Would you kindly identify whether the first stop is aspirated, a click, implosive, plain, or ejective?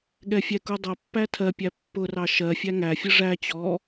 implosive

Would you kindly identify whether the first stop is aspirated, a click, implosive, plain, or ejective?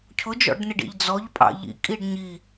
aspirated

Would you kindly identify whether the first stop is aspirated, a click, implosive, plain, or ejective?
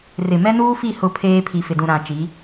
aspirated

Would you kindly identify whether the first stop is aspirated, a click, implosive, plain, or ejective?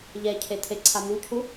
aspirated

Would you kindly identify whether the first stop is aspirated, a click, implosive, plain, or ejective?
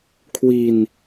aspirated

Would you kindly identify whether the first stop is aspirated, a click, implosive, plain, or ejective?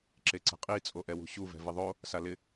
click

